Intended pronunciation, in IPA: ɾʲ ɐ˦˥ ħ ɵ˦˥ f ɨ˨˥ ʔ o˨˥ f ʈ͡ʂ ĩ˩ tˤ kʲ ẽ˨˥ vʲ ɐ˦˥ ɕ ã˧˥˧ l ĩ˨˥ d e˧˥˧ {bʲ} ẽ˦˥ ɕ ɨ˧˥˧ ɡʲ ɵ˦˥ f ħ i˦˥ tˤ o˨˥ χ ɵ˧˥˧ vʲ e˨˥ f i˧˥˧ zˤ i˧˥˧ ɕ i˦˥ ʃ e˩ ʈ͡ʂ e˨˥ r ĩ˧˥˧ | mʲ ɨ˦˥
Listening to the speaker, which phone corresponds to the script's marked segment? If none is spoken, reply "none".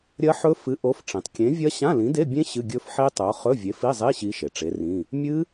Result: bʲ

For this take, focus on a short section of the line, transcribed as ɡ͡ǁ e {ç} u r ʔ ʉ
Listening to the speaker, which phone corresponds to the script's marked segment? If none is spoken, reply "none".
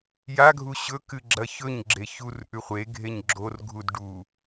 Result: ç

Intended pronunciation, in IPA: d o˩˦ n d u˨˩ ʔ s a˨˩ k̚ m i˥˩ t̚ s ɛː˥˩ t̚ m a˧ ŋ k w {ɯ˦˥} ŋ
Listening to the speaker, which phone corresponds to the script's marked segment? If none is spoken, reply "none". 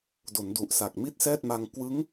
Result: ɯ˦˥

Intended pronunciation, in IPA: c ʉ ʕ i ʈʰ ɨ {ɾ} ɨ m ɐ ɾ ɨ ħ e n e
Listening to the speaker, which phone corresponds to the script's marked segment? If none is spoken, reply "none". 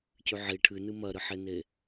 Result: n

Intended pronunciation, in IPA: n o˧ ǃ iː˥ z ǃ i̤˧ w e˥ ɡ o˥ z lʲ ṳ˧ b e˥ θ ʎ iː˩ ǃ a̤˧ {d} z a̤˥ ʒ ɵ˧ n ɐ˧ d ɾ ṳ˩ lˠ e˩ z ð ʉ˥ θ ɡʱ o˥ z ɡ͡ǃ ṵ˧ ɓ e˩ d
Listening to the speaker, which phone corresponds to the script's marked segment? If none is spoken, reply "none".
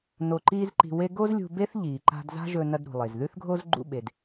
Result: d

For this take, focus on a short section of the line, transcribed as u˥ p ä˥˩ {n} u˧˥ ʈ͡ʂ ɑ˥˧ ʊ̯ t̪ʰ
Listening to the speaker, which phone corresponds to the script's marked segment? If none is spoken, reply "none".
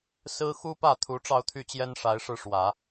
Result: t̪ʰ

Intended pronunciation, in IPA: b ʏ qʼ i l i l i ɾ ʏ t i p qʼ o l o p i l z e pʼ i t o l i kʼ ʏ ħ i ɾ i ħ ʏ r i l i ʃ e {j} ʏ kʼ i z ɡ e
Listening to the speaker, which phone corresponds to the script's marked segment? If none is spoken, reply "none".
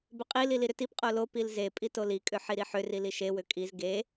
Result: w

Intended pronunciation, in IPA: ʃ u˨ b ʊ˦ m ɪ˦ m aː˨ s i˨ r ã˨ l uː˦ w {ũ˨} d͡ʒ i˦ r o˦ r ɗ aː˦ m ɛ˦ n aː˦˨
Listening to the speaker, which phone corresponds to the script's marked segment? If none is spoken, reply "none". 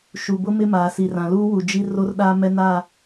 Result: u˨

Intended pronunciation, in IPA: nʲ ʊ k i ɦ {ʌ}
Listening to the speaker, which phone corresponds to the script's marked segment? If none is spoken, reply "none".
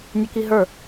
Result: ə˞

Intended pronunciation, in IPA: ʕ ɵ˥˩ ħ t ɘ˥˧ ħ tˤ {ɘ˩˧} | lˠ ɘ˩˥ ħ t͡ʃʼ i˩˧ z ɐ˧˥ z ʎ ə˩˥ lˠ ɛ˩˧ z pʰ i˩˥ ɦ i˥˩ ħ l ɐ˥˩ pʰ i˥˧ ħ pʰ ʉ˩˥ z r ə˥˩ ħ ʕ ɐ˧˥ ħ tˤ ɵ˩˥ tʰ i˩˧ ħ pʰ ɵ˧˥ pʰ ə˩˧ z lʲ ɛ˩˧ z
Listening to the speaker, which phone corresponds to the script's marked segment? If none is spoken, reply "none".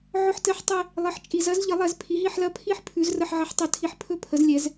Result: ɘ˥˧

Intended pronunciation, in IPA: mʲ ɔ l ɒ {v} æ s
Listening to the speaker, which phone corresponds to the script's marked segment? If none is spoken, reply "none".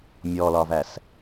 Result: v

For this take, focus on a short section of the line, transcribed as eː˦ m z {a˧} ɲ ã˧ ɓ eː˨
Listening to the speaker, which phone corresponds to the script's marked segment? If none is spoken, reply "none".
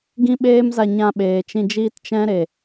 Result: a˧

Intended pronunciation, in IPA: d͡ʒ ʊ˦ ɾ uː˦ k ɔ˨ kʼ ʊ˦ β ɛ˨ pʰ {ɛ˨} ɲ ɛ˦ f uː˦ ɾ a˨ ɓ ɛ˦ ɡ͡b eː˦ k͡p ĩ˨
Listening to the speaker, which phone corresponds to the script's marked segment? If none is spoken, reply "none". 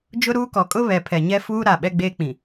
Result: ɛ˨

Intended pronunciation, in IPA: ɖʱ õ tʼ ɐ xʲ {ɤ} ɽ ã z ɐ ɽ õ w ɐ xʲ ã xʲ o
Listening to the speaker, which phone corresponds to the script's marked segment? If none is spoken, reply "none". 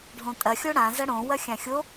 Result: o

